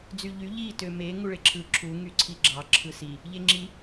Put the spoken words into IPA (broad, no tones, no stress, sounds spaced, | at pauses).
d͡z y ʎ y ʎ i t ø m e ŋ u ɭ e ǁʰ ɯ ǁʰ u ŋ y ǀʰ i ɡ͡ǁ ɑ ǁʰ ɯ s i | ʎ e ŋ͡ǁ i